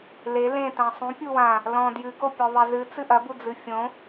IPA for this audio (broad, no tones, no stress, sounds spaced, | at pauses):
l e l ẽ t ã sˤ ũ pʲ u w ã | l ɔ̃ d j ɨ ɡ o pʲ ɔ ðˤ ɛ z ɨ t͡s ɨ ʔ ɐ b u d͡z ɨ fʲ õ